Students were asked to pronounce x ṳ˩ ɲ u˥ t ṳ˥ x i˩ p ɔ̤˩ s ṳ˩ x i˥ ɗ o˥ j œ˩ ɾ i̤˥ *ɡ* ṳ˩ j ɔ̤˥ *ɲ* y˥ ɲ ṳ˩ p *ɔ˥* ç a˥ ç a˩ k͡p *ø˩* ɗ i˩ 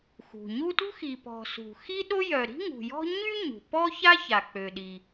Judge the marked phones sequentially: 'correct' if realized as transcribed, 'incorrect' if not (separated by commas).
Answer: incorrect, correct, correct, correct